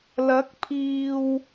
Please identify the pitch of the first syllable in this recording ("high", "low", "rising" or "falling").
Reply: rising